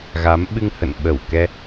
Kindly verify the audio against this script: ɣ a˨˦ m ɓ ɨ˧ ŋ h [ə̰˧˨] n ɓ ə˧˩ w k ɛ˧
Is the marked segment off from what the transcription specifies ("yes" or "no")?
no